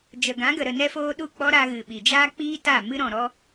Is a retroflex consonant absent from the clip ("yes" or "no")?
yes